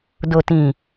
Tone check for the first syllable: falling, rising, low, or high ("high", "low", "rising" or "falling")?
low